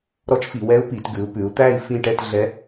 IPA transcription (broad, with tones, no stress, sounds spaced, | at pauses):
ɾ ɔ˧˥ t͡ʃ f i˩˧ w ɛ˧˥ u̯ p i˩˧ t ɡ ʉ˩˧ u̯ p ʉ˩˧ u̯ t̪ æ˥˨ i̯ f ĩ˥˨ ʈ ɛ˥˨ t ɮ ɛ˧˥